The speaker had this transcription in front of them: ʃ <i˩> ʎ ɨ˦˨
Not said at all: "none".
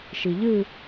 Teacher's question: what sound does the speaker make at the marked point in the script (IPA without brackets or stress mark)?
i˩